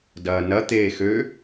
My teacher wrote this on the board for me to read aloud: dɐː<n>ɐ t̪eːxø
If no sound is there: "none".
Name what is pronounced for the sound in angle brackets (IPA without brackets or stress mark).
n